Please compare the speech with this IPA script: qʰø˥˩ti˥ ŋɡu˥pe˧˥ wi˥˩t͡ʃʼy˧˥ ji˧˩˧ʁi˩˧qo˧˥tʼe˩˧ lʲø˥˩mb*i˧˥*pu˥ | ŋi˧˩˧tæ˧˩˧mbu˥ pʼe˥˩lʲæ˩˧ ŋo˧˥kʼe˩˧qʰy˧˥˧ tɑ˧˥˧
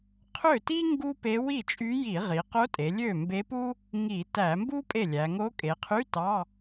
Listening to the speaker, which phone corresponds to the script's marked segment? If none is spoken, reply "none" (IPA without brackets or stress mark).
e˧˥